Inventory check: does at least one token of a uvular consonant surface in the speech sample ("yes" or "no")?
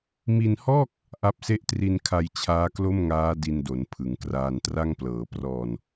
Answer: no